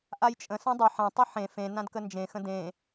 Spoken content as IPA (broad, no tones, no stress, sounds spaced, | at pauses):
ʔ a j t͡ʃʼ ə̃ s ã dˤ ɵ ħ ã tˤ ɯ ħ ẽ f ẽ n ã d k ə n d͡ʒ ẽ x ə̃ d ẽ